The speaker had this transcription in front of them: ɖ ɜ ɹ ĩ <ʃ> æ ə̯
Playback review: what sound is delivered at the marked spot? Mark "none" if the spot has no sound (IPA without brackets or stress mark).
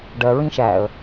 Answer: ʃ